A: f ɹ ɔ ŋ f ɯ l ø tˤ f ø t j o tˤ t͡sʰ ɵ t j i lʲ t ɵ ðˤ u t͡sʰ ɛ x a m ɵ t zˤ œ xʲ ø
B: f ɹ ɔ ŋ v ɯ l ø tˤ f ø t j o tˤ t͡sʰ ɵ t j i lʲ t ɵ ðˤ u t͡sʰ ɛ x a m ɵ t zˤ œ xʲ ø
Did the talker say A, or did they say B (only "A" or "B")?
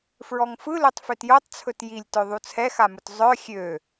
A